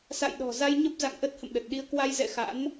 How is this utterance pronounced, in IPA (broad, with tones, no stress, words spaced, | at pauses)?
sa̰˧˨jɗɔ̤˨˩za˧j ɲə˦˥p̚za̰˧˨ŋʔə˦˥t̚ hə̰˧˨mɗə˨˩t̚ɗi˧ə̯ kwa˧jzɛ̰˧˨ xa̰˧˥n